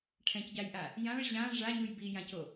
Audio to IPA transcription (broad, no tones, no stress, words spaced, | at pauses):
ʈʰɛ̃cɟajʔa | jãɭ ʑã ʐaɲuj bijãco